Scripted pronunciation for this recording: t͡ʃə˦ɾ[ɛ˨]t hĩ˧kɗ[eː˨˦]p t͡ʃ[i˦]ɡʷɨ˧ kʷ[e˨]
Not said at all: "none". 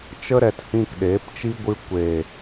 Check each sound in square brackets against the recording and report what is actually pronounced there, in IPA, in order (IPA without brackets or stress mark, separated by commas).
ɛ˨, eː˨˦, i˦, e˨